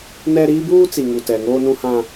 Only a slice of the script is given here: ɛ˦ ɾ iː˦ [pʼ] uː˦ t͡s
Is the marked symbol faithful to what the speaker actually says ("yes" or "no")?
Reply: no